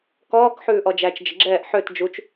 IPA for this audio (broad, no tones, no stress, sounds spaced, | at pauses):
k ɔː k ħ ʉː ʔ ɔ d͡ʒ æ t͡ʃ d͡ʒ ə ɡ͡ǁ ɛː ʔ ħ ø t d͡ʒ u t͡ʃ